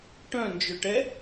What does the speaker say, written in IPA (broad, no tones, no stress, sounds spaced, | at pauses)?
ʈ œ̃ n d͡ʒ œ ʈ ɛ